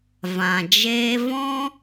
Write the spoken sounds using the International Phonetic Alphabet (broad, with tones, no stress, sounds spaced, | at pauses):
v ã˨ d͡ʒ eː˦ v ɔ̃˦